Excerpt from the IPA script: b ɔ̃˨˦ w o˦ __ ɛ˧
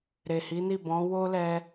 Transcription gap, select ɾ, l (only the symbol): l